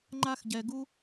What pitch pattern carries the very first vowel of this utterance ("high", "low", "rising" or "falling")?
high